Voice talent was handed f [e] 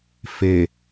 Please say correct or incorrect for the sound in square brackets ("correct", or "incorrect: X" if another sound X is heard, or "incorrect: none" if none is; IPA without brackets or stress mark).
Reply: correct